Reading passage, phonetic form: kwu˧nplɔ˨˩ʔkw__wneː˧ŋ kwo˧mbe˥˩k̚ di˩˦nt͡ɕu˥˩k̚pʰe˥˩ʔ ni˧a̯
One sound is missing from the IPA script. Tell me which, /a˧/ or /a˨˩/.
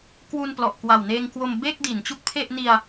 a˨˩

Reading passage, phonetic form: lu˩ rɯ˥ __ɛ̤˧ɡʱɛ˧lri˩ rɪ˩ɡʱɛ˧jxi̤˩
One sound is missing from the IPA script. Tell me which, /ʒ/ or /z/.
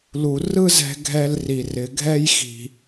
z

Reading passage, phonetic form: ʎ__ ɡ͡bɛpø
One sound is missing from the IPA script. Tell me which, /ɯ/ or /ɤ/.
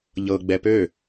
ɤ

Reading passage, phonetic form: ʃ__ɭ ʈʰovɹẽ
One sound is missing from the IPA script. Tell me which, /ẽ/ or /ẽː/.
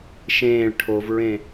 ẽː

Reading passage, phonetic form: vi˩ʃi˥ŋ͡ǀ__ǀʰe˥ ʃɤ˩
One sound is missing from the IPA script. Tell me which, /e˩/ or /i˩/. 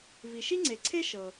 e˩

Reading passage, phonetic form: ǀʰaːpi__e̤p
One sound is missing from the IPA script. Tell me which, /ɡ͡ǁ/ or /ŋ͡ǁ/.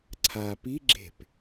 ɡ͡ǁ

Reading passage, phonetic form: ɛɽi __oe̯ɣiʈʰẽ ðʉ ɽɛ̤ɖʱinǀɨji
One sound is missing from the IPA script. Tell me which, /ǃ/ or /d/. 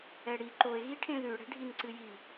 ǃ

